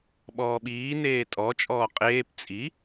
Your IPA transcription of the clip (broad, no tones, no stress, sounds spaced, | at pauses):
ɓ ɔː ɓ iː n eː tʼ ɔ t͡ʃʼ ɔː qʼ eː p t͡sʼ i